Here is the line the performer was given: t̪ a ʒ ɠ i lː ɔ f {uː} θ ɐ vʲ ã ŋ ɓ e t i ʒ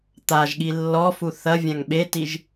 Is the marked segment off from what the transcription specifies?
yes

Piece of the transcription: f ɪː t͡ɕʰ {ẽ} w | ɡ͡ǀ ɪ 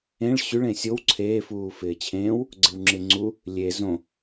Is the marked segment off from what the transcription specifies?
yes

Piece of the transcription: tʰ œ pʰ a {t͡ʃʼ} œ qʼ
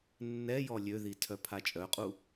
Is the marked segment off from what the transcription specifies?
no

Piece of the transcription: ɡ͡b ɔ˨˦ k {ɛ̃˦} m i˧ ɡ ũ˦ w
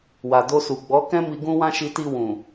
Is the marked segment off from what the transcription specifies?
no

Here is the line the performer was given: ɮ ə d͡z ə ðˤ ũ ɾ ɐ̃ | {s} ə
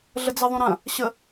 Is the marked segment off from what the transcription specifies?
yes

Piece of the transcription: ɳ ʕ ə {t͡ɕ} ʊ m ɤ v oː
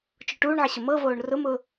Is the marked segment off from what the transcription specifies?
yes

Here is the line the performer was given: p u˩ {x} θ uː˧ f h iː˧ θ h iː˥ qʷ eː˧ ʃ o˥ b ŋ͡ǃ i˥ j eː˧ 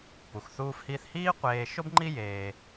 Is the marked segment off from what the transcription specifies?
no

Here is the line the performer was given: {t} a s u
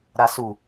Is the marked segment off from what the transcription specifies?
yes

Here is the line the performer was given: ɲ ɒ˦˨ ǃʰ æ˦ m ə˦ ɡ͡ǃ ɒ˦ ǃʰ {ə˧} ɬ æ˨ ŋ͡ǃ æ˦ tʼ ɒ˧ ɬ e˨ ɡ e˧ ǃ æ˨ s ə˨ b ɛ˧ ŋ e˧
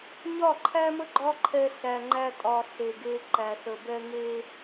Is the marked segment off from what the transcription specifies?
yes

